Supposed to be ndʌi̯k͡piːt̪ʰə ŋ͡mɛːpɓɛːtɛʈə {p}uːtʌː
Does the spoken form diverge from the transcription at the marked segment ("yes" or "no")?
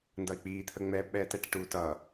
yes